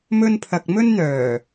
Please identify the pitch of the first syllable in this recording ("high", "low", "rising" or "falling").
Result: high